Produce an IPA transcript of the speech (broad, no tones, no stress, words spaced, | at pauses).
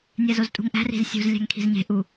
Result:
nʲæzoztʼṳŋʔæ̤ ri̤zsʲṳz lʲæ̤ŋkʰi̤zɲe̤ ʔu